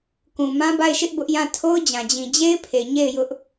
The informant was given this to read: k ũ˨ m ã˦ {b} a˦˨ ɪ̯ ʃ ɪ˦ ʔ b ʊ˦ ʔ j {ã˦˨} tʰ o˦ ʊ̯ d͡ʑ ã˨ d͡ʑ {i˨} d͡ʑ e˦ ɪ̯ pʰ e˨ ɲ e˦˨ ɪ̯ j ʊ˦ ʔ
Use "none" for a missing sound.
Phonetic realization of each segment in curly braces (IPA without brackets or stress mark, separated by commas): b, ã˦˨, ĩ˨